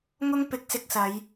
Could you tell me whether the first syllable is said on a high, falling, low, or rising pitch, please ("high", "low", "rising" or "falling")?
high